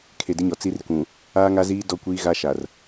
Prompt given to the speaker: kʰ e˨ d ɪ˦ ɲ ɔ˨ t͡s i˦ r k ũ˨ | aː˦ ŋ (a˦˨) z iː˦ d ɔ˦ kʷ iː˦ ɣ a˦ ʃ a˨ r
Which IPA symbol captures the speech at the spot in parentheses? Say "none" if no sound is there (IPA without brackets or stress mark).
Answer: a˦